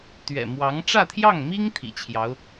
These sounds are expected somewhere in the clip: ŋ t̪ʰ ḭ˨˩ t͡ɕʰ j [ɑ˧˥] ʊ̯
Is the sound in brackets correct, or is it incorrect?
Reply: correct